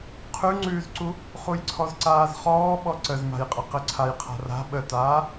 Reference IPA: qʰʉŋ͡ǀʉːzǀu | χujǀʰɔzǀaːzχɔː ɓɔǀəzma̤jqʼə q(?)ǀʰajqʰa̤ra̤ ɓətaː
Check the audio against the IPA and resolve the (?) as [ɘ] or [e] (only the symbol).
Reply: ɘ